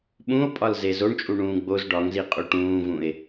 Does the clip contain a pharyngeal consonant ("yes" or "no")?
no